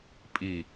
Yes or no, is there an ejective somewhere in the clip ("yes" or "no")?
yes